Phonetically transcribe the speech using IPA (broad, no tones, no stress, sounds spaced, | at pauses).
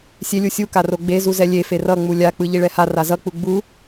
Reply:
sʲ e lʲ u sʲ u k a r o ɡ͡b e z u z ɛ lʲ e f e r ʌ ŋ͡m u lʲ a k͡p ɯ ʎ i ɭ ɛ h a r a z ʌ k͡p u ɡ͡b u